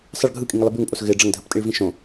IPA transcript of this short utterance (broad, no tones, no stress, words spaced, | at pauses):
sˤəɭ ɡʱɯkʼĩŋəlˠɪ bʉŋpʼos ɣɪ ɖ͡ʐəŋdʱəptʼiɭvĩ ʃõ